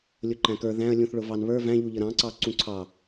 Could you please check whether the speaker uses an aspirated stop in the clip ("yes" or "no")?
yes